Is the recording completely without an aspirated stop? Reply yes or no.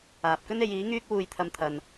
no